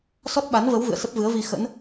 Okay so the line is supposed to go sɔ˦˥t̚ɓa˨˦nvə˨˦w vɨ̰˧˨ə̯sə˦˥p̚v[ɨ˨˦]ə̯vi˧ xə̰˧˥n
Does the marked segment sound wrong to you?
no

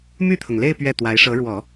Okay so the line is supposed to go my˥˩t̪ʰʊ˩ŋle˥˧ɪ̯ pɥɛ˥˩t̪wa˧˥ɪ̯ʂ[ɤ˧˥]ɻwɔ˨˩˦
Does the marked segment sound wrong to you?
no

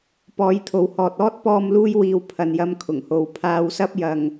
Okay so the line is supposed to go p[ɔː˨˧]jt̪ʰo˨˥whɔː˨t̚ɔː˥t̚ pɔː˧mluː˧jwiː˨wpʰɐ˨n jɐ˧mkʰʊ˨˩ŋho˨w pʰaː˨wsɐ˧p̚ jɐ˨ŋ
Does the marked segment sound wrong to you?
no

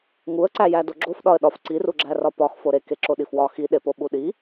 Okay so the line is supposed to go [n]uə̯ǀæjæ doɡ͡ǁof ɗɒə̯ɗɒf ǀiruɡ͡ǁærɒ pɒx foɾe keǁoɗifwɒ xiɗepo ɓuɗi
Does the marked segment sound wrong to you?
yes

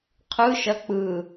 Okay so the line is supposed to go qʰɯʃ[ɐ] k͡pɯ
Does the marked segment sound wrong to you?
no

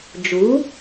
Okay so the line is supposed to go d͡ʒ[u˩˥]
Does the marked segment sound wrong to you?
no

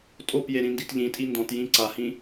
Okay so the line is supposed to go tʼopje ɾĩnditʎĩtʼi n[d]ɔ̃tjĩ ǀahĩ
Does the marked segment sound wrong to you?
no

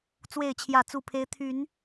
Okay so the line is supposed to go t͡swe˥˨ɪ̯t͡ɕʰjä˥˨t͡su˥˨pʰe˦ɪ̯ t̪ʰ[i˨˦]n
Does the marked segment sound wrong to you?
yes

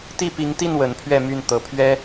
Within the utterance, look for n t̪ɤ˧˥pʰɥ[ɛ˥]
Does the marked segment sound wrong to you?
no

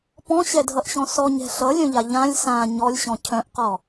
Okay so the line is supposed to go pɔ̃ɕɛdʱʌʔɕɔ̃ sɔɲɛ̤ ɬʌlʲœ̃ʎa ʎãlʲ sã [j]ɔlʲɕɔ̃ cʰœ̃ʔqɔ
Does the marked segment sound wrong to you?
yes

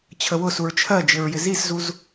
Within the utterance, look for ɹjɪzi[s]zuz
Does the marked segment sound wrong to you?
no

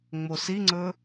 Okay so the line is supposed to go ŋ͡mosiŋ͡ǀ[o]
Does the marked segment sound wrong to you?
yes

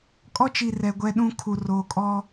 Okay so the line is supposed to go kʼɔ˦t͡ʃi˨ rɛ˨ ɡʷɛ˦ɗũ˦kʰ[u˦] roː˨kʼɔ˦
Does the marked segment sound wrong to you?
yes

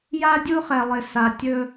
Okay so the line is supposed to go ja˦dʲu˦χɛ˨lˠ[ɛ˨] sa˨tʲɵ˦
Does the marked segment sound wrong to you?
yes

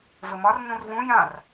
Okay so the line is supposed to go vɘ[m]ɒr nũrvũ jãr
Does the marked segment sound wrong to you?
no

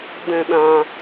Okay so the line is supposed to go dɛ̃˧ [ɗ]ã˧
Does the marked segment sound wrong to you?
no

